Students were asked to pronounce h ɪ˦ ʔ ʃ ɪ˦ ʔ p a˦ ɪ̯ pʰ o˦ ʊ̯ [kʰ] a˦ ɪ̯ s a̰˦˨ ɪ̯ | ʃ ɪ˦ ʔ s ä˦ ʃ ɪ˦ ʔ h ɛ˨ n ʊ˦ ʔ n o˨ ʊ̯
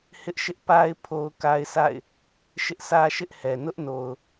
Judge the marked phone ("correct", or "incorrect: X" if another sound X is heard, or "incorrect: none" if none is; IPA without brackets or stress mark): incorrect: k